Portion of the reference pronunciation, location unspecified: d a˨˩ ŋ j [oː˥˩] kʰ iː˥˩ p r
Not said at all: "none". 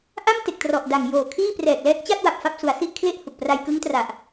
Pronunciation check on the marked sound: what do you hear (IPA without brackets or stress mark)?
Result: oː˨˩